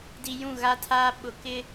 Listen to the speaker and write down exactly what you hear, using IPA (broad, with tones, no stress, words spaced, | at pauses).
di˨ jũ˦˨ɣa˦tʰa˦ ɓʊ˨kɪ˦